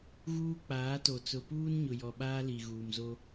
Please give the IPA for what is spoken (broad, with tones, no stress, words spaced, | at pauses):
ɣuː˦k͡paː˨˦to˨ t͡sʊ˨puː˦nɲʊ˨ jɔ˨ɓaː˦ li˨ɣuː˨mzo˦